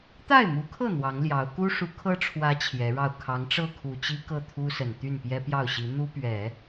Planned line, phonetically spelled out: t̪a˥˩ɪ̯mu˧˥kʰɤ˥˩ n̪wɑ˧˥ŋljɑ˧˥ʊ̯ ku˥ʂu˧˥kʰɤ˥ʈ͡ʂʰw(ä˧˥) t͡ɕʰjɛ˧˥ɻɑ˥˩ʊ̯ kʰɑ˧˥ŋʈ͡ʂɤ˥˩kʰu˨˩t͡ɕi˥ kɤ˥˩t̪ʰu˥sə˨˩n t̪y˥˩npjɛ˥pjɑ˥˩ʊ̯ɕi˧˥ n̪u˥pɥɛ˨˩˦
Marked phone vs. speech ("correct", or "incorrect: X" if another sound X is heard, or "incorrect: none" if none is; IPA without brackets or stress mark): correct